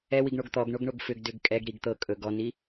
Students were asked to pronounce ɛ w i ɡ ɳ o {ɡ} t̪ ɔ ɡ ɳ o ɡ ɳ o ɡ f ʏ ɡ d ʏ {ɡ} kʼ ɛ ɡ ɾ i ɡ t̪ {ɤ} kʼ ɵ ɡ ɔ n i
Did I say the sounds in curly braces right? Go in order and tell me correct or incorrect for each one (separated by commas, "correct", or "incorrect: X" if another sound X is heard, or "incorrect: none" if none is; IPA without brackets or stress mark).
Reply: correct, correct, correct